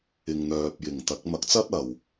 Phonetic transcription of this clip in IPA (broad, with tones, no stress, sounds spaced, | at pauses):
ɪ˨ ŋ n̪ œː˨ p̚ j ɪ˨˩ ŋ t̪ ɐ˨˥ k̚ m ɐ˨˥ k̚ t͡s ɐ˥ t̚ ɐ˨ w